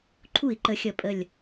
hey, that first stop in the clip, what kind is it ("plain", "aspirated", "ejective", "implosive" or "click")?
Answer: click